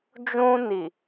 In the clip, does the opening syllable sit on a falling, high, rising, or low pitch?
high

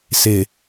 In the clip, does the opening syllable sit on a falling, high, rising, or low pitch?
low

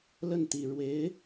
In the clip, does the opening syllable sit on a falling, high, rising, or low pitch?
falling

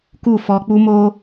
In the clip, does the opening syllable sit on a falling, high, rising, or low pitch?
falling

